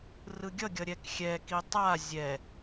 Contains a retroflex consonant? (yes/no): no